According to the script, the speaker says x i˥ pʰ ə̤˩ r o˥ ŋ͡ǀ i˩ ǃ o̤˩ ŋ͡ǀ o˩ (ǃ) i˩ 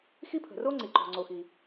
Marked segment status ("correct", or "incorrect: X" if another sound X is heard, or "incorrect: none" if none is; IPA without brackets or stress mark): incorrect: x